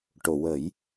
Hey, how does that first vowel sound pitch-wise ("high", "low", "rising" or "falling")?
low